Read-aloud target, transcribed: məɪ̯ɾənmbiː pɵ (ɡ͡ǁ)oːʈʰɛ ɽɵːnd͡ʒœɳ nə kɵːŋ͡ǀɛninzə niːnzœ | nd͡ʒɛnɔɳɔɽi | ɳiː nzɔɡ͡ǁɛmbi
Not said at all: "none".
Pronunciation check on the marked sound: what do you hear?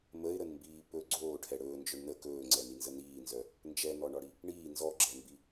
ɡ͡ǀ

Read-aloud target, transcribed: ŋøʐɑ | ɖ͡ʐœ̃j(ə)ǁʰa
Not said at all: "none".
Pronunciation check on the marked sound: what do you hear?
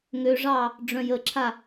ə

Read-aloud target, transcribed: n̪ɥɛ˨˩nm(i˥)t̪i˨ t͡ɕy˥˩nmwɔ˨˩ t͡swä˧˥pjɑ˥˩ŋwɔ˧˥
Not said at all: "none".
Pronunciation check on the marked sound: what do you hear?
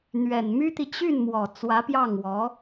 y˥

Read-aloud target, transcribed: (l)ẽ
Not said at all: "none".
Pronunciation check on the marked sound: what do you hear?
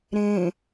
ɾ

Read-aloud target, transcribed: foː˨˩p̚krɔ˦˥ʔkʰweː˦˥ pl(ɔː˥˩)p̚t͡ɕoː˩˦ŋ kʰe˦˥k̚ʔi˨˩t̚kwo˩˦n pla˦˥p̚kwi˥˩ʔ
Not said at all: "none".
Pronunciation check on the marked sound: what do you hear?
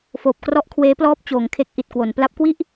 ɔː˥˩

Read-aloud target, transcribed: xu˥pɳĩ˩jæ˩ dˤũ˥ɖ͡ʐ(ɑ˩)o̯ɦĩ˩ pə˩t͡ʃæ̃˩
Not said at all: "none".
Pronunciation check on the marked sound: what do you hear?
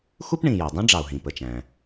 ɑ˩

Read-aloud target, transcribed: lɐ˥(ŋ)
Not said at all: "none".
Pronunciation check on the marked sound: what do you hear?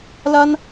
n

